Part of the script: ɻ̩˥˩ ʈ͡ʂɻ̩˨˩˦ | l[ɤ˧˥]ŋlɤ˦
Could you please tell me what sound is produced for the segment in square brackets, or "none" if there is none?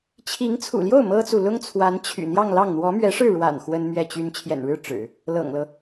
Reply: ɤ̰˨˩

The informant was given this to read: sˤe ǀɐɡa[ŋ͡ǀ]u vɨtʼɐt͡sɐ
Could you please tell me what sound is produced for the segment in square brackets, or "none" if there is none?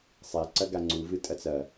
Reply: ŋ͡ǀ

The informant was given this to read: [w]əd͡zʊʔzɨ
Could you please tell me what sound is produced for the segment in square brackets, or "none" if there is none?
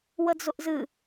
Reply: w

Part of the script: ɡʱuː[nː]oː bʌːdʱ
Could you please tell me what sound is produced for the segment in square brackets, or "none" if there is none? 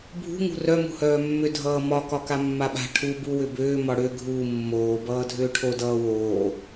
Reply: mː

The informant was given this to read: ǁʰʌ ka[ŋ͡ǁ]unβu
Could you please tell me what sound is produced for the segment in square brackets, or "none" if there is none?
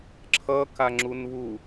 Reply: ŋ͡ǁ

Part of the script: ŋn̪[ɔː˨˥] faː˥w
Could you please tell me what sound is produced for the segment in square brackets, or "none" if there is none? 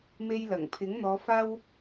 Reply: ɔː˨˧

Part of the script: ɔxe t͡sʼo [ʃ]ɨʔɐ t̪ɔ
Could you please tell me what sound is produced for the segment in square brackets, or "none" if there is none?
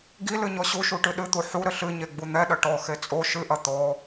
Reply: ʃ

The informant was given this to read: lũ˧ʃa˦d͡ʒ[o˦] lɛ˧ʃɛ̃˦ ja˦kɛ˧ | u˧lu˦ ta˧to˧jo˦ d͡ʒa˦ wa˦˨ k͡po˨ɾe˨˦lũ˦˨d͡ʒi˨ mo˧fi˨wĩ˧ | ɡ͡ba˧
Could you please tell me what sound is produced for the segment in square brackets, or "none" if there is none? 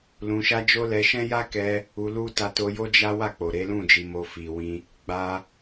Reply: o˦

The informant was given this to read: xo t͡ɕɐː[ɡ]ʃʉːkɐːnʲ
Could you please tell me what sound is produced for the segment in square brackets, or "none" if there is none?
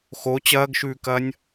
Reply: ɡ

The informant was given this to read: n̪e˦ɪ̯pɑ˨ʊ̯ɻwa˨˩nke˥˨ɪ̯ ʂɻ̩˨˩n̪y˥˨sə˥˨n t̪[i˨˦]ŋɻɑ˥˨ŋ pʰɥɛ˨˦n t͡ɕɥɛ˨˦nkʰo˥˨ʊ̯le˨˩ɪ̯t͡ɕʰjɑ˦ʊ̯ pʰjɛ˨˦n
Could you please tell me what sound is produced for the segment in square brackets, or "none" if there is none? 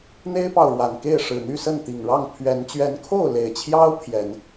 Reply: i˨˩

